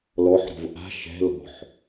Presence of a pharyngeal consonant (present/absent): present